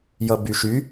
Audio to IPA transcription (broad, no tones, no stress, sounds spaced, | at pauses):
j ʌ b y ʃ y